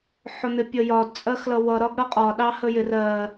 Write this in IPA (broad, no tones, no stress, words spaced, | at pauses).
ħʊn̪ɪpʲəjɒd t͡sʼɜxlʌwʌ ɾɒɡɽʌqʼɒ ɗɑhəjɪr ɜ